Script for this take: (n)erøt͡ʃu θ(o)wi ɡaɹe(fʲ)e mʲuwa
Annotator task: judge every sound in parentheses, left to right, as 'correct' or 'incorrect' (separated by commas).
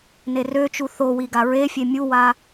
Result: correct, correct, correct